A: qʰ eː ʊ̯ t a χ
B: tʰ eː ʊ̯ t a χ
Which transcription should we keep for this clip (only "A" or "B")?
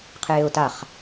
A